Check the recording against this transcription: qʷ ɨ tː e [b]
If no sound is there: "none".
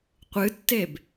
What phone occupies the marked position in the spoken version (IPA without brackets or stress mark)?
b